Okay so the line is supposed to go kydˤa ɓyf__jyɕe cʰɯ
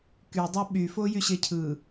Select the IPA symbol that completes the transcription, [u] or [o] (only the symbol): o